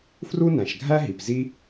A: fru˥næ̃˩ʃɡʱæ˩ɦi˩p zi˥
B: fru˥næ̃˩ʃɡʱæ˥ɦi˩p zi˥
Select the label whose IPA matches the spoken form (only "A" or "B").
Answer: B